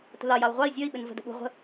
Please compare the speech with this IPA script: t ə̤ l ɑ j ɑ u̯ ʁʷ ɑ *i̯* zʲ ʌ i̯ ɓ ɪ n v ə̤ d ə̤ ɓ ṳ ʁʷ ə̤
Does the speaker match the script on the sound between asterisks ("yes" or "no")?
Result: yes